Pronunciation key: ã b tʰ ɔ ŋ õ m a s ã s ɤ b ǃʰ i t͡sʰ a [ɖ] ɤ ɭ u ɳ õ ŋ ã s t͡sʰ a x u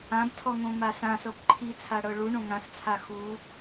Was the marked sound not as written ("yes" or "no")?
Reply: yes